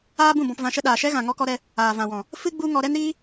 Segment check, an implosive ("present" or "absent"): present